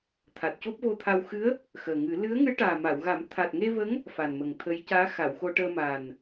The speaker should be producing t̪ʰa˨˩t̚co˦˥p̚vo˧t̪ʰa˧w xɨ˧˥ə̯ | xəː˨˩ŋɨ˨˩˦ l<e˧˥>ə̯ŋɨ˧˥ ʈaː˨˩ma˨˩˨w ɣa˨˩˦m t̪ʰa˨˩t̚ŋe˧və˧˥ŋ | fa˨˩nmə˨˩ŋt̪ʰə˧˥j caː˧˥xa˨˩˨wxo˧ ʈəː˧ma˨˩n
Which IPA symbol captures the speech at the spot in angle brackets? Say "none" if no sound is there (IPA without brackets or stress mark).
ɨ˧˥